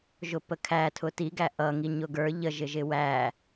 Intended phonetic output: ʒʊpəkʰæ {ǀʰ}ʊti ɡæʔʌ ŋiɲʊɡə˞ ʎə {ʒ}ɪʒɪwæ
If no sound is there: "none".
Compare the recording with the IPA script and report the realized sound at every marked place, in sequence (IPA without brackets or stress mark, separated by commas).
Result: tʰ, ʒ